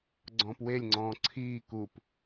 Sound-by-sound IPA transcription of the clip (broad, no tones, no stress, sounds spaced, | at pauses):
ɡ͡ǀ ɔ̃ː p w e lʲ ŋ͡ǀ ɔ̃ː ǀʰ iː k u p